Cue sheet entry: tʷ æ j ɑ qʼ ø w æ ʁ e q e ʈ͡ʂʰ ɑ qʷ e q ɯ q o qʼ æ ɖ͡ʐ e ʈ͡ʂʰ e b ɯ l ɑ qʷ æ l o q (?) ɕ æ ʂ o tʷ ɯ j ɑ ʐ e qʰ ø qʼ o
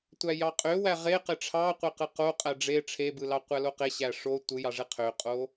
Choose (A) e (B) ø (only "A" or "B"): A